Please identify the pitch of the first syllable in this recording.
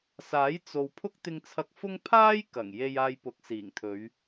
rising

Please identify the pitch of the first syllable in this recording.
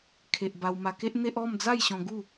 low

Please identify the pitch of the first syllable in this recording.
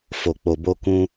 low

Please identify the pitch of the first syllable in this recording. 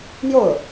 falling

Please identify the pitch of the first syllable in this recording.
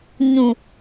low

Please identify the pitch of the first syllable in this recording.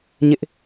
high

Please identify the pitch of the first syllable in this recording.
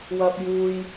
high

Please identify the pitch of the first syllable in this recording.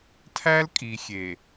high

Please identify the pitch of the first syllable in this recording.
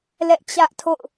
high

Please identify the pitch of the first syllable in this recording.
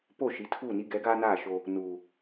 falling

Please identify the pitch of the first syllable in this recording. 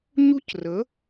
high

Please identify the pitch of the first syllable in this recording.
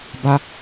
high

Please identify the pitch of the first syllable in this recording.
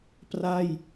falling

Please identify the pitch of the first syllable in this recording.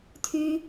high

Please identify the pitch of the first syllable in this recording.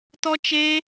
high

